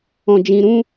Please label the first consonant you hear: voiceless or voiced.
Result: voiced